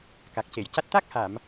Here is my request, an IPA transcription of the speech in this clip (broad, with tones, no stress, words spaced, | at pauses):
ka˨˩k̚ce˨˩˨jca˦˥t̚ t̪a˦˥k̚ha˨˩˨m